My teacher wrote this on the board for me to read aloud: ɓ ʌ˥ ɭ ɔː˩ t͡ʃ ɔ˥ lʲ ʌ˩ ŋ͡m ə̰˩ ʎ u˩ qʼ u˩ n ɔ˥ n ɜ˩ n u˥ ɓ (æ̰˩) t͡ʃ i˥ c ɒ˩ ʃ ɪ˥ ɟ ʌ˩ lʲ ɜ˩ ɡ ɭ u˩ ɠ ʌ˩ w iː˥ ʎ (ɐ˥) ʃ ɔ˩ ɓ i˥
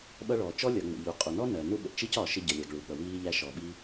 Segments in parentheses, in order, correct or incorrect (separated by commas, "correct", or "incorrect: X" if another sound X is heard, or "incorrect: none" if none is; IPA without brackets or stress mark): incorrect: ə̰˩, incorrect: æ˥